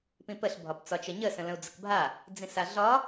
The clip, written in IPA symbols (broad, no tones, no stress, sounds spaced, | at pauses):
p ĩ p ə ɬ bʱ ɒ p t͡s ɒ t͡ʃ ə ɲ ə s ə̃ l ə̃ u̯ d͡z ə k bʱ a | d͡z ĩ s a ɮ ɒ